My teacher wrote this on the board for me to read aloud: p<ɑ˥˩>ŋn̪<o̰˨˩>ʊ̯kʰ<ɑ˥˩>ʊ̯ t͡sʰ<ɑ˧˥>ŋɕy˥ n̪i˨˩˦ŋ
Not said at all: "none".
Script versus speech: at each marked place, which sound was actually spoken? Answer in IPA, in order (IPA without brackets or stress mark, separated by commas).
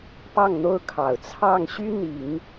ɑ˥˩, o˥, ɑ˨˩, ɑ˥˩